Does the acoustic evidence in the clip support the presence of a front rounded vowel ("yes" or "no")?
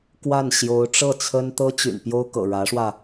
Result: yes